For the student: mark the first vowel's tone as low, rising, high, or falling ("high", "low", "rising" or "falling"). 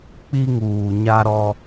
high